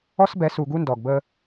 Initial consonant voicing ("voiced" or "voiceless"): voiceless